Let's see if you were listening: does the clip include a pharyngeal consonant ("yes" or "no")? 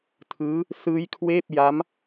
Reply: no